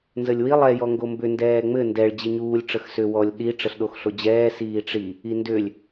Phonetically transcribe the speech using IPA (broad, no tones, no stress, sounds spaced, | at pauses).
n z ə lʲ w i lˠ ɛ j ɔ ŋ ɡ o m b ʏ n d ɛː ŋ͡m ɘ n d ɛ ɭ d͡ʑ i ɲ uː lʲ ʈ͡ʂ ə x s ʏ w ɔ lʲ ɗ i ʈ͡ʂ ə ɬ ɗ o x ɬ o d͡ʑ ɛː s iː ʈ͡ʂ i | i n d ʏ lʲ